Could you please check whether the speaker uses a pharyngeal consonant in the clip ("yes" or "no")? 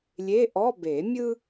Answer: no